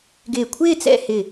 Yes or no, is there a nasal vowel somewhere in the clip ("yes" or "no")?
no